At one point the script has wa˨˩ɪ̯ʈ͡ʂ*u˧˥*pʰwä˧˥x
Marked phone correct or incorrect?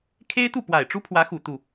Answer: incorrect